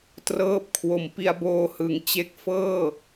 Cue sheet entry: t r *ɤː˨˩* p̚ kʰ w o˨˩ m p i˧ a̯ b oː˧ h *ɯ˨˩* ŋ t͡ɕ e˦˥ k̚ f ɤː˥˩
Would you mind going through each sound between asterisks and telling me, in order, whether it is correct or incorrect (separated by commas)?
incorrect, correct